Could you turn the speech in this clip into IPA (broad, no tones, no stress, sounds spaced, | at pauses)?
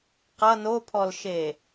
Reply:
q ʌ n o pʰ ɔ l ʃ e